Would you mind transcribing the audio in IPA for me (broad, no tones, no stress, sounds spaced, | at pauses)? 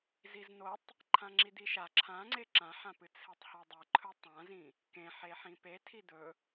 z i z n o tˤ | ǃʰ ã ŋ͡ǁ i d̪ i ʃ a ǁʰ ã ŋ͡ǀ e ǁ ã ħ ã p ɨ t͡sʰ e tˤ h a dˤ ɨ ǃʰ ɵ tˤ ã z ĩ | k ẽ ħ e ħ ĩ p e tʰ i d̪ ɵ